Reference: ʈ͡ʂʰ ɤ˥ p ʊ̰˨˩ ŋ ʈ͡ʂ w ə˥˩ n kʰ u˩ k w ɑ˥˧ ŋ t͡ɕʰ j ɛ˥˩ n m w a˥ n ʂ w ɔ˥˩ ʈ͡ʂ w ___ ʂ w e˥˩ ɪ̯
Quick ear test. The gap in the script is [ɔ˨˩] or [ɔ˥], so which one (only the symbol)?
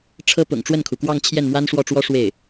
ɔ˥